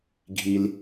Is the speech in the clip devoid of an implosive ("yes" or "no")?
yes